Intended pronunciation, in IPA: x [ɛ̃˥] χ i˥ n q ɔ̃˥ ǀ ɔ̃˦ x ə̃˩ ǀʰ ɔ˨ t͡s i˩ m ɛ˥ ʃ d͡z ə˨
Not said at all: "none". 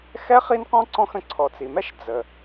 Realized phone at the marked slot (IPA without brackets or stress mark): ɛ˥